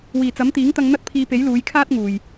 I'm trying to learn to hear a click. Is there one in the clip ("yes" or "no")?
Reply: no